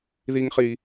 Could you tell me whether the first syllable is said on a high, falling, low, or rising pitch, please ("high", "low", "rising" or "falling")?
high